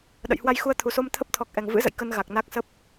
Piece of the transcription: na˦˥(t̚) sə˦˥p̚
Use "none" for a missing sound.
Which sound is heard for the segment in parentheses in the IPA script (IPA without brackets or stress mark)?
k̚